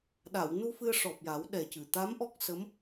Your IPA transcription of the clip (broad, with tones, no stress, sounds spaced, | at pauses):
ɗ a˨˩˨ w n u˧ f ɨ˧ ə̯ ʂ ɔ˨˩ p̚ j a˨˩˦ w ɗ ɛ˨˩ c ɨ˨˩˨ t̪ a˧˥ m ʔ ɔ˦˥ k̚ s ə˧˥ m